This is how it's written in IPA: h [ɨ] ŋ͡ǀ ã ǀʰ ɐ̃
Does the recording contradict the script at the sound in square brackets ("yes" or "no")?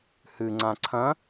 no